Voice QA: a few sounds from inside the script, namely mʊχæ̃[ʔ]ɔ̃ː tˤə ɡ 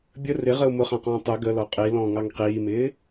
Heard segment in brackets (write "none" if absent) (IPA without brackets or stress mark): q